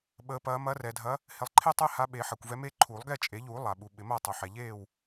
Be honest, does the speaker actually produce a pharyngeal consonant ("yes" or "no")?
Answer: yes